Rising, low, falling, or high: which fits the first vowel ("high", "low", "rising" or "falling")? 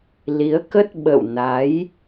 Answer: rising